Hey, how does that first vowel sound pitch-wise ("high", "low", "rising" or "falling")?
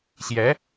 rising